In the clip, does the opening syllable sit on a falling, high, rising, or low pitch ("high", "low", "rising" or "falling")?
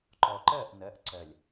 low